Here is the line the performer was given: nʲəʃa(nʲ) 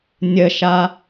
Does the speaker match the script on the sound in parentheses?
no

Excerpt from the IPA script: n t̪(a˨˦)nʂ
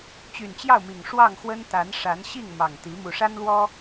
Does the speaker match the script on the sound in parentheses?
yes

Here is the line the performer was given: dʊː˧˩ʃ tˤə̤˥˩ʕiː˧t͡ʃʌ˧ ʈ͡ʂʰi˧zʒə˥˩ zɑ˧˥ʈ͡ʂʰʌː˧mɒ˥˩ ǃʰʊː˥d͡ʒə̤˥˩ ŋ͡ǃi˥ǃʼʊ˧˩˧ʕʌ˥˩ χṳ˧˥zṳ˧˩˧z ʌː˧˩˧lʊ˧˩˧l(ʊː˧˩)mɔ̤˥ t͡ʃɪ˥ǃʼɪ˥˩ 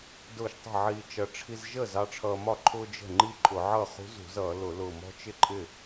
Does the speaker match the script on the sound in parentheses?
yes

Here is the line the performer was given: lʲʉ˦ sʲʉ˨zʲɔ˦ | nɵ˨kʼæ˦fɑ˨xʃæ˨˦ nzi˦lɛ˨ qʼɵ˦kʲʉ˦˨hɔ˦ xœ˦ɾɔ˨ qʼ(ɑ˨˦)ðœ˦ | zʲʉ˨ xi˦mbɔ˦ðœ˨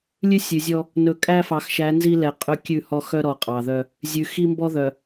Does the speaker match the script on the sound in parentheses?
no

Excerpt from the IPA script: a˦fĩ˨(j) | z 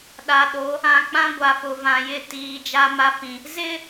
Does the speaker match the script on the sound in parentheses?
no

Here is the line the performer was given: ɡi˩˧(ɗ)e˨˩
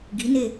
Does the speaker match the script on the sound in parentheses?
no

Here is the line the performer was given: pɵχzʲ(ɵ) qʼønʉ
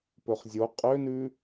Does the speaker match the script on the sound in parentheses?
no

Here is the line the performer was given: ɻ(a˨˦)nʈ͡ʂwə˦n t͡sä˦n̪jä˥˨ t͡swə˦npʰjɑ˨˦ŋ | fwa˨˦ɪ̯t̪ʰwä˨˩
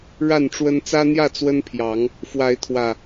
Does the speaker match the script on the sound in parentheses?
no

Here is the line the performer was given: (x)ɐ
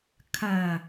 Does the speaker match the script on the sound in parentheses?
no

